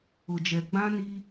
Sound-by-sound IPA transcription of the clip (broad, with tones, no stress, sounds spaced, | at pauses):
ʊ˨ d͡ʒ ɛ˨ ɡ͡b ã˦ n i˦